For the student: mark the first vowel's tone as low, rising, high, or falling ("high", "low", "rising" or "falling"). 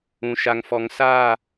low